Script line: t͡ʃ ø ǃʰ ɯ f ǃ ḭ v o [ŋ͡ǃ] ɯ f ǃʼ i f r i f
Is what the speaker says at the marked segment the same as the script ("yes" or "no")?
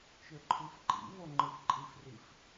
yes